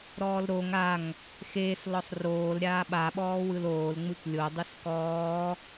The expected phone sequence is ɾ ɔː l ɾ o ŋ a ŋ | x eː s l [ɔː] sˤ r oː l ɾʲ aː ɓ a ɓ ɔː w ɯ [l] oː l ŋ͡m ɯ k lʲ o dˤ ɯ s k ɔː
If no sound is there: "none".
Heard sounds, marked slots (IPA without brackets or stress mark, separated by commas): ɔ, l